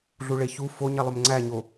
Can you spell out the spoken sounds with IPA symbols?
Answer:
ɮ u ɭ e ç u f o ɲ e lˠ ø m ŋ͡ǀ æ ɲ o

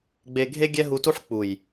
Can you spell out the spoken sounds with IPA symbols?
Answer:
ɡ͡b e˧ ɡʱ e˦ ɡʲ ɛ˦ ɦ u˧ t u˦ ħ k͡p u˨ j

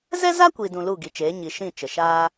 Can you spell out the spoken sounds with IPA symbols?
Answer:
z ɛ˦ z a˦ kʷ i˧ d ũ˧ l u˦˨ ɡ i˨ t͡ʃ eː˨˦ ɲ i˧ ʃ ĩ˦˨ t͡ʃ ə˨ ʃ aː˦

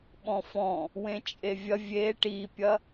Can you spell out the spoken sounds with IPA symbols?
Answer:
ɓ ɔ̃ f ɔ̃ | w ẽ t͡ʃʼ e vʲ ɐ vʲ e ʈ i pʲ ɐ

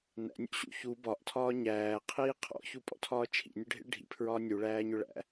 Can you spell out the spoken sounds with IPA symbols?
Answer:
n æ̰ nʲ ṵ ɕ ṵ ç u b ɒ ʔ tʰ ɒː ɲ æː qʰ iː qʰ ɔ̰ ç u pʼ ɔ̰ tʰ ɒː t͡ʃʰ ḭ nʲ ʊ ɖʱ ḭ ɭ ɖʱ ḭ pʰ ɹ ɒː nʲ u ɭ æː ɲ ʊ ɭ æ̰

